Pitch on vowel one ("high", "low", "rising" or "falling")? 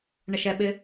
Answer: low